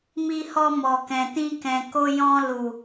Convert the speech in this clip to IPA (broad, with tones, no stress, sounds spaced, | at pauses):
m i˧ h ɔ˧ m ɔ˨ k ɛ̃˨ t ĩ˧ k ɛ̃˨ k o˧ j ɔ̃˧ l u˨